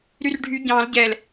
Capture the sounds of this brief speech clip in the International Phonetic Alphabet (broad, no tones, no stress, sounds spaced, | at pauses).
ɾ y r ɖʱ y ɟ ɑ̃ l ɟ ɛ l